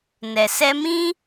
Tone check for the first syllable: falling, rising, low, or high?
low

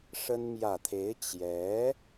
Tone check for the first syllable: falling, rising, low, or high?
high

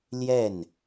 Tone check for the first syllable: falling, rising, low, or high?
falling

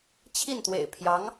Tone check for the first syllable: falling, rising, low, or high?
falling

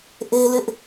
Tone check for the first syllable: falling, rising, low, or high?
high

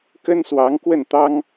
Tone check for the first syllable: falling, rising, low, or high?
high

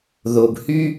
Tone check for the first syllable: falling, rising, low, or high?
low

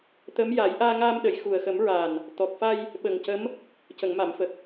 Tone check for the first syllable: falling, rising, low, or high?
rising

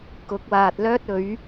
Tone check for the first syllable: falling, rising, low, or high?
rising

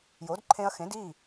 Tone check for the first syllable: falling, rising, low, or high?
rising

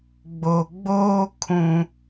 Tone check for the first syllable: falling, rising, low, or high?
low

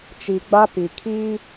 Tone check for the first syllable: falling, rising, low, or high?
low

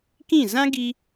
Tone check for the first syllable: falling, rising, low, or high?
falling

